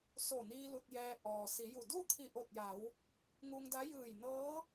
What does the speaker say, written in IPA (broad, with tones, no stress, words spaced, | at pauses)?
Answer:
so˧˩niː˧ lu˧t̚jɛː˧ ʔɔː˩ si˩˧ju˧˩ du˥˨t̪ʰi˧˩ʔo˧˩t̚ja˩˧w | ŋu˧ŋda˧˥ jɯː˧˩jnɤː˧˥